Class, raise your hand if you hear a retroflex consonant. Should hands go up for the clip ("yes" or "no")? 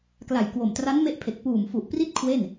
no